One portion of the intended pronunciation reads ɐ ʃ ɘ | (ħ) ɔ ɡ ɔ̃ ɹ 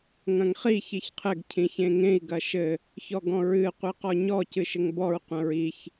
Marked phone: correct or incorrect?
incorrect: ç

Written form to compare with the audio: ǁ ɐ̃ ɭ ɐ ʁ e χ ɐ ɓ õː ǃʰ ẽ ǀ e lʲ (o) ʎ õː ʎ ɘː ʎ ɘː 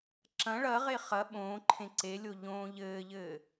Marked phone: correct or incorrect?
correct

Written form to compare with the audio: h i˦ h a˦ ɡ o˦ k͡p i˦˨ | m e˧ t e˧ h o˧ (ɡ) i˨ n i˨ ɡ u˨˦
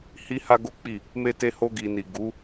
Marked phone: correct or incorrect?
correct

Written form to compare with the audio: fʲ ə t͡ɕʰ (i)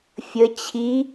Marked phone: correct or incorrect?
correct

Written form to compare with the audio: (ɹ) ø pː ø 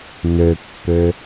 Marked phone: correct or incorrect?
incorrect: n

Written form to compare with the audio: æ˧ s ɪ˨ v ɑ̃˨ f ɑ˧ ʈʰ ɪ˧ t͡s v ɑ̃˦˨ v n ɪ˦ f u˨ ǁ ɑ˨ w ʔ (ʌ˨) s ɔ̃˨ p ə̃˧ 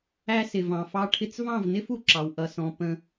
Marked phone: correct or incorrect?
correct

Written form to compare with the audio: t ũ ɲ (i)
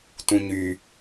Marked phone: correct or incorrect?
incorrect: y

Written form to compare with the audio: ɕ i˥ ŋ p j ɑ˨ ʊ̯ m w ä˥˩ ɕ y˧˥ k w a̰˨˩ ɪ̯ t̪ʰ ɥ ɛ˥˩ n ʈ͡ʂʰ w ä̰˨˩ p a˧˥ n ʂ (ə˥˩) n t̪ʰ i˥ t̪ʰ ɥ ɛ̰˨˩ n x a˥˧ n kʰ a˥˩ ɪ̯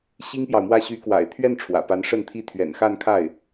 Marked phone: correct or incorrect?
correct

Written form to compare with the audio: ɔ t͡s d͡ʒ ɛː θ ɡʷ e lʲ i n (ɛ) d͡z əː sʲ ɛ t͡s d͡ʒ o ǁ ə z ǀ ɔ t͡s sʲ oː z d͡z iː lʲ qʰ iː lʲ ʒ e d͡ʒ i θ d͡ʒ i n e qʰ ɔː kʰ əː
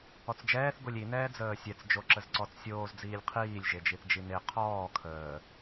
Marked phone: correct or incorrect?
incorrect: ɛː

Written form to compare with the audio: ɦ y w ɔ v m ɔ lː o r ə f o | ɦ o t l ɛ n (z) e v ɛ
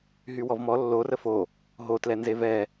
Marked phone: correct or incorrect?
correct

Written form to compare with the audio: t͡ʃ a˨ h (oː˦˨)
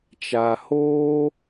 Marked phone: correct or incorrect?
incorrect: oː˦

